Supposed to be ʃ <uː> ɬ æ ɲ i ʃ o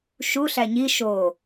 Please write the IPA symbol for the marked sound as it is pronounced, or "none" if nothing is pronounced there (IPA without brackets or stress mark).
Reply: u